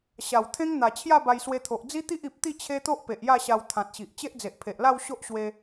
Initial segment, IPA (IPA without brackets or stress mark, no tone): ɕ